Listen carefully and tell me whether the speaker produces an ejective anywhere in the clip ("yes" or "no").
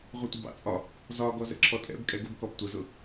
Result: yes